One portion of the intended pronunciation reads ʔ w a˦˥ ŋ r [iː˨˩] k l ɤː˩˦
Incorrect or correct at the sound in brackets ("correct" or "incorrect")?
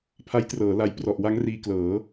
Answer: incorrect